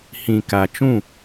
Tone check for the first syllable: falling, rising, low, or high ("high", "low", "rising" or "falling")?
low